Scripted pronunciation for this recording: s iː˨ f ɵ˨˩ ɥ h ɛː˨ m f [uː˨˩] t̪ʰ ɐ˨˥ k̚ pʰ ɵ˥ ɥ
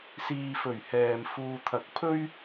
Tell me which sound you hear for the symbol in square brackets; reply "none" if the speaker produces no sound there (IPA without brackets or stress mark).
uː˧